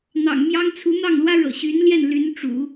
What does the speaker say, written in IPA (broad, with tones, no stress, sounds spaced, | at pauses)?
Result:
n̪ ɑ̰˨˩ ŋ m j ɑ˥ ŋ t͡sʰ u˧˥ n̪ ɑ˥˩ ŋ l w ä˥ ɻ ɤ̰˨˩ ɕ y˧˥ n l j ɛ˥˩ n l y˧˥ n ʈ͡ʂ ṵ˨˩˦